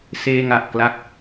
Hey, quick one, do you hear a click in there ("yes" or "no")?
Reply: no